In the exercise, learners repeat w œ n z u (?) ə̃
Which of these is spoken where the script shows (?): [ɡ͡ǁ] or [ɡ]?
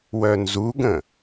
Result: ɡ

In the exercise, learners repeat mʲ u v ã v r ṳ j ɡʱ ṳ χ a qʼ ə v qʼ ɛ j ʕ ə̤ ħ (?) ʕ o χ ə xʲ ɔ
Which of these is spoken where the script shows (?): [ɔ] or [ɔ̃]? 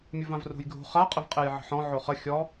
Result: ɔ̃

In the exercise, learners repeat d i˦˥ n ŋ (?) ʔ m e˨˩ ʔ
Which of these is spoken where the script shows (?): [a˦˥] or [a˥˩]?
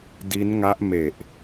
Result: a˦˥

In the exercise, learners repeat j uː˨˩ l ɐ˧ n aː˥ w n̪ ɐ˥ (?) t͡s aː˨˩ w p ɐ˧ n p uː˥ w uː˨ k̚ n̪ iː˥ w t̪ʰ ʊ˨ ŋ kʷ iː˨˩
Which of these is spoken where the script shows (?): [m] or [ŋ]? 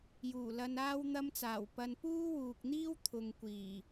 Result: m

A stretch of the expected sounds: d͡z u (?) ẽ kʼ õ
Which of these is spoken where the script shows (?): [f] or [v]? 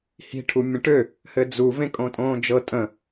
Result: v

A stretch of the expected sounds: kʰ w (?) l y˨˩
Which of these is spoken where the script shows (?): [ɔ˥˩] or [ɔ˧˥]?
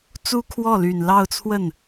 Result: ɔ˥˩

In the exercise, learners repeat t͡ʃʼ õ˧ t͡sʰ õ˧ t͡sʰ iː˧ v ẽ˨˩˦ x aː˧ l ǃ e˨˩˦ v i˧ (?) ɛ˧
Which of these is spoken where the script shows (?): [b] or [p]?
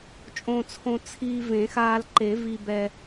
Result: b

